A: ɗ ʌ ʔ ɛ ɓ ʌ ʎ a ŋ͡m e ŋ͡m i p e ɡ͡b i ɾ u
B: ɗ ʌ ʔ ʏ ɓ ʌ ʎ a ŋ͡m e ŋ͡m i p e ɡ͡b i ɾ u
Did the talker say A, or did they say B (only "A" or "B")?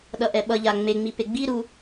A